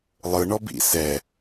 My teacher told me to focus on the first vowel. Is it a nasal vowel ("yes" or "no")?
no